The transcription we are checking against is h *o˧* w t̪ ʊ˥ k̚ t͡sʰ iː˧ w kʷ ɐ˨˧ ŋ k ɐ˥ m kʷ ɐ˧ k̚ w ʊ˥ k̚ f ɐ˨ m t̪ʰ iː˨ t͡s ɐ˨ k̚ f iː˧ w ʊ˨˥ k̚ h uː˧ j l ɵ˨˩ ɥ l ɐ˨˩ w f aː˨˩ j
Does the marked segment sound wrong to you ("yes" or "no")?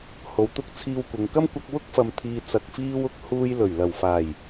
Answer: yes